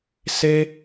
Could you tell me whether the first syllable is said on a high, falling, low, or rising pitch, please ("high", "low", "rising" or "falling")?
high